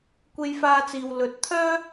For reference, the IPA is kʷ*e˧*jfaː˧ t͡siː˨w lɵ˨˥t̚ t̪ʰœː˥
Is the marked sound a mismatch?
no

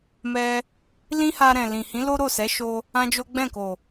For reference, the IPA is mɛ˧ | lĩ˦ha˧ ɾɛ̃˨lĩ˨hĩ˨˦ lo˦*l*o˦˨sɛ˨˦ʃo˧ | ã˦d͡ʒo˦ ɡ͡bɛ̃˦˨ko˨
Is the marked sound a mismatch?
yes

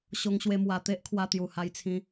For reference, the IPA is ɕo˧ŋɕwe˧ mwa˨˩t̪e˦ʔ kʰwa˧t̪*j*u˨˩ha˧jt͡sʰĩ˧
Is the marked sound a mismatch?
no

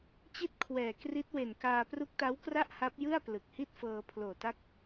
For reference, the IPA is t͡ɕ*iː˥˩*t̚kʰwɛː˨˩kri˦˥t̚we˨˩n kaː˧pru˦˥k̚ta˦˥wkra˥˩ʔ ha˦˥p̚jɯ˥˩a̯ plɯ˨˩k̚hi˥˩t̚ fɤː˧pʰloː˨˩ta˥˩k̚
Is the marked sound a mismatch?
yes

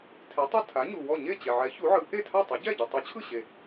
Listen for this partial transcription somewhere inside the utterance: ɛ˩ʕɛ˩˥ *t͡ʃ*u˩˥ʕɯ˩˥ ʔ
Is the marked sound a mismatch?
yes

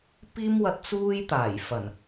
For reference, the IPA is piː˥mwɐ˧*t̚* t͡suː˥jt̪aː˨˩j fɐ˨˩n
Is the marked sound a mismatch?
no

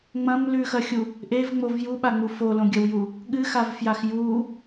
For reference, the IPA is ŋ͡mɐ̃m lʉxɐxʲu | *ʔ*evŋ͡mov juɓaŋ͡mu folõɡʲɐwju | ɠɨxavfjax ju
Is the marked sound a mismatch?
no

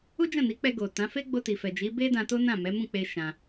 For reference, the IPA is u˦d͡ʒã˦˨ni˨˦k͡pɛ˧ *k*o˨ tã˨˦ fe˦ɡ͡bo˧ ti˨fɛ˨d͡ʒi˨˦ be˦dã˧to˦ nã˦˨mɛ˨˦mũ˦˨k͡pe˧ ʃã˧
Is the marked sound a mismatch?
yes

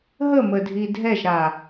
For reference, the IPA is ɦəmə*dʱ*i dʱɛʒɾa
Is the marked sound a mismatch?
no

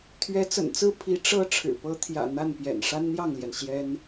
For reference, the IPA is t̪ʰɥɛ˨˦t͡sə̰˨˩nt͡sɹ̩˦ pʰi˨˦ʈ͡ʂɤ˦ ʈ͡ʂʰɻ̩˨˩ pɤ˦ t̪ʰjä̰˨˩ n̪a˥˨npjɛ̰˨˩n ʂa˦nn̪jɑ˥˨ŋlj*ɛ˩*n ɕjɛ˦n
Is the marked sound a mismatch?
no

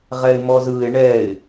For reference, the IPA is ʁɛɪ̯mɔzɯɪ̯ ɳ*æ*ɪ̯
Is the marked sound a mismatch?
yes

